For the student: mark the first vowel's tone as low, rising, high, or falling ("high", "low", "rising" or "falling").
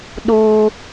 high